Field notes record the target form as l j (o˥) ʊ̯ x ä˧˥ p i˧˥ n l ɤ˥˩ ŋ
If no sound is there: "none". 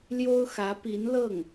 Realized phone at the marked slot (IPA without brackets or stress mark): o˥